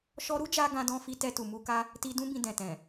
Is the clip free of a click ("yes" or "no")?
yes